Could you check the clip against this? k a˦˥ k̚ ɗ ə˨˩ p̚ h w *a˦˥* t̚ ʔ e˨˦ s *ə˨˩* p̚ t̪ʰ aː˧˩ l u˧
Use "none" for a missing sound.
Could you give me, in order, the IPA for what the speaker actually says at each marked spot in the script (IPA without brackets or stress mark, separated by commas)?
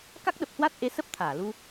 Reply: a˦˥, ə˦˥